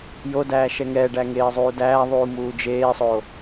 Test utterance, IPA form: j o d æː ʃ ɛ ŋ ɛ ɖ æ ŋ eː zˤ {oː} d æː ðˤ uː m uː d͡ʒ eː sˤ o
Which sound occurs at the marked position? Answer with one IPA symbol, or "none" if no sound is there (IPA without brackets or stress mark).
uː